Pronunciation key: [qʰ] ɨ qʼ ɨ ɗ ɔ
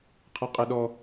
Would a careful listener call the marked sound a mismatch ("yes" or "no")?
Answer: no